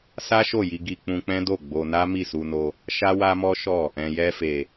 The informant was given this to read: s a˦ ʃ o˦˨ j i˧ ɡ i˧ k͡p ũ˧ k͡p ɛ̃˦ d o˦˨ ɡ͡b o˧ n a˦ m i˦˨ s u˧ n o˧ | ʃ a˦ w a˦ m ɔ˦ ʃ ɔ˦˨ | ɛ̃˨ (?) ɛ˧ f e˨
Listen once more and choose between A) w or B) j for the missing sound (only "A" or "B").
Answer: B